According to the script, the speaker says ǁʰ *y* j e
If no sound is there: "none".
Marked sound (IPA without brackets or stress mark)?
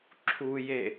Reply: u